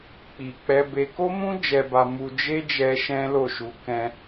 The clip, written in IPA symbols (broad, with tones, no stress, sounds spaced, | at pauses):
k͡p i˨ k͡p ɛ˧ b e˧ k o˦ m ũ˦ d͡ʒ ɛ˧ b a˧ m u˧ d͡ʒ e˦ d͡ʒ ɛ˧ ʃ ɛ̃˦ l o˦˨ ʃ u˧ k ɛ̃˧